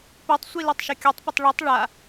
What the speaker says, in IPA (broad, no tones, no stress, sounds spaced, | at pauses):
p œ tˤ sʷ i l œ tˤ ʃ œ kʲ o tˤ p ə tˤ ɭ i tˤ ɭ a